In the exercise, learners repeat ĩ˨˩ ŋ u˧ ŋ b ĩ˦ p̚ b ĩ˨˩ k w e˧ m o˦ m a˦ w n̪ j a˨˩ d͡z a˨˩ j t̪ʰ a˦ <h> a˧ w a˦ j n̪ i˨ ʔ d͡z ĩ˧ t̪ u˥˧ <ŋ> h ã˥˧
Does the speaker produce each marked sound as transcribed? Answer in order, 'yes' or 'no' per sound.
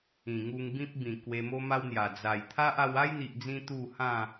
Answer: no, no

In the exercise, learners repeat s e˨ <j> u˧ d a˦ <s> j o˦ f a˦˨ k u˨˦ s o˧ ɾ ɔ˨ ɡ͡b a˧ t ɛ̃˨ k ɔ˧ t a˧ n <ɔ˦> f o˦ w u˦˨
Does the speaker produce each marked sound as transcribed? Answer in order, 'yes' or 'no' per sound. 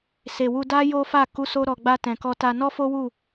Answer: no, no, yes

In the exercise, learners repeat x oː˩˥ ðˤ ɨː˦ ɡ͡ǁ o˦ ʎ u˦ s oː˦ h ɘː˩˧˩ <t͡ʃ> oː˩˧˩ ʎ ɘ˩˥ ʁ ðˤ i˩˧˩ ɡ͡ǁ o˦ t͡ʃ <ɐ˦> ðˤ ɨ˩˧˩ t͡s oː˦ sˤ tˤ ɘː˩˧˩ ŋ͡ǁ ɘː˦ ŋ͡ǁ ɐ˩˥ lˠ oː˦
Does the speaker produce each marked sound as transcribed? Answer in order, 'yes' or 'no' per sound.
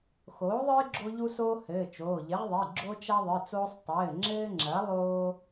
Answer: yes, yes

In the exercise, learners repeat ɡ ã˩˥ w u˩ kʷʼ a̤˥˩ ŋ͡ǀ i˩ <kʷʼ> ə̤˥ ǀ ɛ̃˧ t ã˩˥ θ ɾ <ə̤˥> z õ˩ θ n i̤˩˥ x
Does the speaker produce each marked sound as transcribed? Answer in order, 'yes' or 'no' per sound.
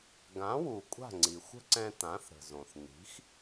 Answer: no, no

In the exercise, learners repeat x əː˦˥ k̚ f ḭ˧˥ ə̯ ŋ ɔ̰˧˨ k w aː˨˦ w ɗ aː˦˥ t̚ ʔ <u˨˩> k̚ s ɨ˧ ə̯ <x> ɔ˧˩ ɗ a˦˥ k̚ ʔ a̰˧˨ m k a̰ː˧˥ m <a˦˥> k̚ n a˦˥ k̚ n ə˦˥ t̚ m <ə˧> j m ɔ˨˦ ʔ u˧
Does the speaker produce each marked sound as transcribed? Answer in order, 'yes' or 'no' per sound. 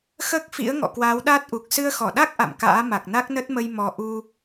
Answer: yes, yes, no, yes

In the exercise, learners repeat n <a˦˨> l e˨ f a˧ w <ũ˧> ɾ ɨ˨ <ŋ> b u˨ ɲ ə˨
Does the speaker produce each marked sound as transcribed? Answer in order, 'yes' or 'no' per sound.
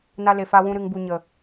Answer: no, yes, yes

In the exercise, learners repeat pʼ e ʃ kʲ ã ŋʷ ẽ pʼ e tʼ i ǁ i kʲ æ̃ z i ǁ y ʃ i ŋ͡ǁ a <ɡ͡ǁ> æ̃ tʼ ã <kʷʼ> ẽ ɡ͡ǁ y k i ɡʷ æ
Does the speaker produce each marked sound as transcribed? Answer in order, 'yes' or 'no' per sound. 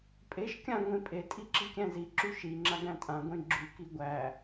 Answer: no, no

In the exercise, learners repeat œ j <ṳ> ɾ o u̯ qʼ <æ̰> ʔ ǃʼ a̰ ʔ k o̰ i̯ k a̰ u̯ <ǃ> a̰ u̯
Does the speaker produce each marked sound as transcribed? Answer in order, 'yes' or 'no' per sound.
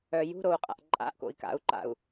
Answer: yes, no, yes

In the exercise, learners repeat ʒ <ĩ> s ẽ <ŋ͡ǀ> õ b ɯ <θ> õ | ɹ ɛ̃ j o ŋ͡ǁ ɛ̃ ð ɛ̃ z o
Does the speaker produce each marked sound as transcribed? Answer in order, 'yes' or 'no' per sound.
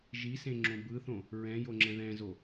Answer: no, no, yes

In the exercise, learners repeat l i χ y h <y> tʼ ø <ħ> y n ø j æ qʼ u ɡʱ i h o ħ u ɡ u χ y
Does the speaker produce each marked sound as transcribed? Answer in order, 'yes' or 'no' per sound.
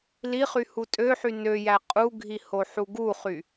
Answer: no, yes

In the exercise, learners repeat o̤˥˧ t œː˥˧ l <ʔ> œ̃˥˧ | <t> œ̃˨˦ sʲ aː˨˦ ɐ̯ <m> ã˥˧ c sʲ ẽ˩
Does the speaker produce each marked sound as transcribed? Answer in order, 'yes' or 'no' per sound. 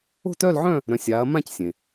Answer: no, no, yes

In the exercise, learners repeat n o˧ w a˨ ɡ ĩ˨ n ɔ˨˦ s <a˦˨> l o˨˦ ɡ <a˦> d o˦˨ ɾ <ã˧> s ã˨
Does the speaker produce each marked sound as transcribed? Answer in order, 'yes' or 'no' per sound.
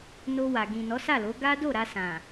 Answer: yes, yes, no

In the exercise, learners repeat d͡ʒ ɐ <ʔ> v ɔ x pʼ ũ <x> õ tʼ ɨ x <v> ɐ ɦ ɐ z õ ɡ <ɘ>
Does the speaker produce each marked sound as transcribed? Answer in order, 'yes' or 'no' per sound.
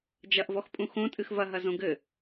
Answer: yes, yes, yes, yes

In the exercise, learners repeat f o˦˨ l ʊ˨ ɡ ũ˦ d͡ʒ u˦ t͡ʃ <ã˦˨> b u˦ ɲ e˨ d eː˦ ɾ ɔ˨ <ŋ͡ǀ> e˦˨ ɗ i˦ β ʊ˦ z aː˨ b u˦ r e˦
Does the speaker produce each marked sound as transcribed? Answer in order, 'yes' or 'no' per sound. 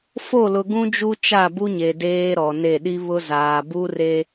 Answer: no, no

